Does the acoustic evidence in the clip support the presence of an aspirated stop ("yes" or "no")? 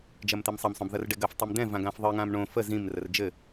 no